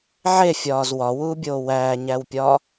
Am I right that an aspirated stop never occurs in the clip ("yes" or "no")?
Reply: yes